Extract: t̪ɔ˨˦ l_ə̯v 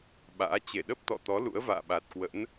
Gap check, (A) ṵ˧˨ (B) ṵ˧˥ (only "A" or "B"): B